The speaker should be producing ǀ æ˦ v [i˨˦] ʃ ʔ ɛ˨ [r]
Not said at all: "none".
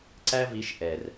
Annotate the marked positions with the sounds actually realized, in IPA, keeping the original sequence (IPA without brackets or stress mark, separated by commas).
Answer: i˨˦, r